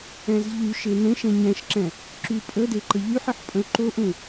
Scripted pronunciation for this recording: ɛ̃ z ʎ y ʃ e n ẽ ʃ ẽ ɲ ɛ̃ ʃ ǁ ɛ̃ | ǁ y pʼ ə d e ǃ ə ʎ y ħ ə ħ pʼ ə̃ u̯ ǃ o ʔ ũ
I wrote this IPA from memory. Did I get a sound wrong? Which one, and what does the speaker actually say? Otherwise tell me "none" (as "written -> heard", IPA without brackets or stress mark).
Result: none